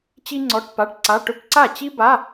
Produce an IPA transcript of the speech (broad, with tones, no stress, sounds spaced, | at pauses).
t͡ɕ i˥ ŋ͡ǀ ɔ˧˥˧ ʈ p a˧˥˧ ʈ ǀ a˧˥˧ ʈ ɵ˥ p ǀ a˥˩ t͡ɕ i˥ b a˧˥˧